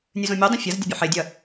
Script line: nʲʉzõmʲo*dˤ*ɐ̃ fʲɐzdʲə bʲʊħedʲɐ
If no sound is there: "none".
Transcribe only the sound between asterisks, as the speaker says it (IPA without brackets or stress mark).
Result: dˤ